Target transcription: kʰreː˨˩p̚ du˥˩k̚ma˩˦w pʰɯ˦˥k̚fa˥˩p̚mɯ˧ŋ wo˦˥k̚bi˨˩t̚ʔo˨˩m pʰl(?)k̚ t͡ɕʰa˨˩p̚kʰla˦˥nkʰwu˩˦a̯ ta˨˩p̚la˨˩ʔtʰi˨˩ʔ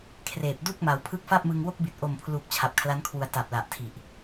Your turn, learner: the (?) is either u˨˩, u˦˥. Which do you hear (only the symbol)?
u˨˩